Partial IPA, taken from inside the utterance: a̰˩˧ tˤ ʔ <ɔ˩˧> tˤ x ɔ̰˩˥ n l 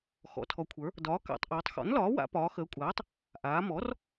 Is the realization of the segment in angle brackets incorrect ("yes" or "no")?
yes